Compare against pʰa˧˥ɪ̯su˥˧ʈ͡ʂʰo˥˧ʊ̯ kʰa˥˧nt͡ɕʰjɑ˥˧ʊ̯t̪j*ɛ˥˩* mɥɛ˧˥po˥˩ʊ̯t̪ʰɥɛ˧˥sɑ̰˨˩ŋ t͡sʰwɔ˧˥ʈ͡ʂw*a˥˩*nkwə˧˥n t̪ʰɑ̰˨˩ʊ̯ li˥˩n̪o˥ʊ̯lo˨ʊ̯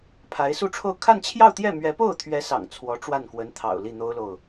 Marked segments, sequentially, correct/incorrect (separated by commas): correct, correct